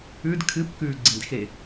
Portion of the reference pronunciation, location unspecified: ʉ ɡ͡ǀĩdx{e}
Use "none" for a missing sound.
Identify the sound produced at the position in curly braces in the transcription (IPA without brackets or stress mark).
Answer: e